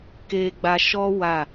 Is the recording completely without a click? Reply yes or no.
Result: yes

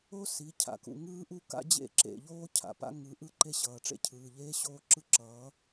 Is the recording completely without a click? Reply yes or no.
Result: no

